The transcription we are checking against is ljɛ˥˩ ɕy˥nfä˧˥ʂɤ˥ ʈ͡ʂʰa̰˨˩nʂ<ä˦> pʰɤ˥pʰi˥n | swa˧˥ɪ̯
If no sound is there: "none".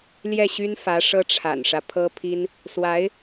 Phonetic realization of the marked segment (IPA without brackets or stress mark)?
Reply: ä˦